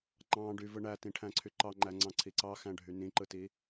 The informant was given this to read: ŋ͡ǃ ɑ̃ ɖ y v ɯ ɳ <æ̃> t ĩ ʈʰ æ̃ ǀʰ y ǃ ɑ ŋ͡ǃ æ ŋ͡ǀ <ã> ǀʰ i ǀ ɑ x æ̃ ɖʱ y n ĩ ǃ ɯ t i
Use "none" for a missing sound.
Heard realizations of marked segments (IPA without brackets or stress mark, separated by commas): æ, ɑ̃